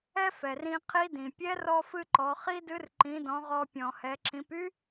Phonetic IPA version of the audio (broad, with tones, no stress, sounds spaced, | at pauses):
ɛ˥ f ɛ˩ r ĩ˧ qʰ i˧˥ d ĩ˩ pʲ ɛ˧˥ r ɔ˧ f ɨ˧ ǃ ɔ˩˧ χ i˥ d ɨ˧˥ r ǃ ĩ˩˧ d ɔ̃˩˧ ʁ ɔ˧ pʲ ɔ̃˩ h ɛ˩˧ ǁ ĩ˩˧ p y˥